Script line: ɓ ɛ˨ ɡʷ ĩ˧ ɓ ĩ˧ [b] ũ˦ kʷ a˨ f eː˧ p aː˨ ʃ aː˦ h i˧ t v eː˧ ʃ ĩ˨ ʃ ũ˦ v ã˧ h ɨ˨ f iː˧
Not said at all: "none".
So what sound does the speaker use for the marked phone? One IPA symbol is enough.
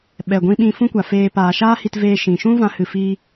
f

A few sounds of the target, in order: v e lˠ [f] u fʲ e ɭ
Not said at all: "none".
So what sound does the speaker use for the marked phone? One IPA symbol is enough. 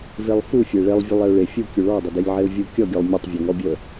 f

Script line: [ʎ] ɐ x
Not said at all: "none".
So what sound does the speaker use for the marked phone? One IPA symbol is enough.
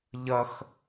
ʎ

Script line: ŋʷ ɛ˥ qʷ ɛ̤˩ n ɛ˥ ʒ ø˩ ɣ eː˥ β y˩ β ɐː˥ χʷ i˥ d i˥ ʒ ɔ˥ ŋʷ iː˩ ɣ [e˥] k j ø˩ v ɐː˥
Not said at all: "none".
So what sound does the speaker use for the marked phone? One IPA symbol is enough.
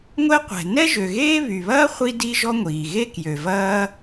e˥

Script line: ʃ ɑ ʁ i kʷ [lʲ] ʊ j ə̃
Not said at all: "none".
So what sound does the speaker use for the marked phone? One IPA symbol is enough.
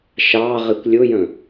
lʲ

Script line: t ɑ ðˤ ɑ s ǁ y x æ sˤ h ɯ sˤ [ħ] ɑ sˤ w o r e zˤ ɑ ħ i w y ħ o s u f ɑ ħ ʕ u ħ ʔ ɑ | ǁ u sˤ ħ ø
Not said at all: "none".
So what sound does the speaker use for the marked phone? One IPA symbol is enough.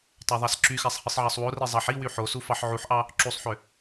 ʕ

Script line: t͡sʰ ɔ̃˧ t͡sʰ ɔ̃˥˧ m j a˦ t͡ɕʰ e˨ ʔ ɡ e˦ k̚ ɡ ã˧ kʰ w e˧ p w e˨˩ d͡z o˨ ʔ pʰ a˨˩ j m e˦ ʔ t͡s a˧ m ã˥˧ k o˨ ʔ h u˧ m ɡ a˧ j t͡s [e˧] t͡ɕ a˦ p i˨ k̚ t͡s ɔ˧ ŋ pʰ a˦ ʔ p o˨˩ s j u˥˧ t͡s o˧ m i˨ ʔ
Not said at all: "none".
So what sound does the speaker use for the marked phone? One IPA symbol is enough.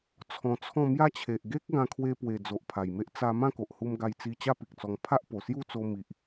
i˧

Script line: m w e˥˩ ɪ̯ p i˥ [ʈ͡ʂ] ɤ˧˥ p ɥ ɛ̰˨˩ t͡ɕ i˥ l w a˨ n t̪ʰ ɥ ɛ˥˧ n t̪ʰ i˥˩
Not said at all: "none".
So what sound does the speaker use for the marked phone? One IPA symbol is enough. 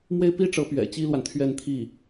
ʈ͡ʂ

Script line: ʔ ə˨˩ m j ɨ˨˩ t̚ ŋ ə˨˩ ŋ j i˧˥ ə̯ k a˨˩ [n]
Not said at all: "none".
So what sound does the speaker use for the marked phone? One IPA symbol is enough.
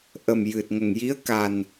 n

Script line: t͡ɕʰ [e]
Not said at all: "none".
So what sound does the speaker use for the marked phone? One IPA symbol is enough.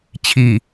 i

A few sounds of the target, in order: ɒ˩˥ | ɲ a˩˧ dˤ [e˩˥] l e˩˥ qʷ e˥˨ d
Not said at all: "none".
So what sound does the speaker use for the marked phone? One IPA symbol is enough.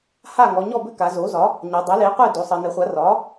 e˩˥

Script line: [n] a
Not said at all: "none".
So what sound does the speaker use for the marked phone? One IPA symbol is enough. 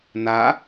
n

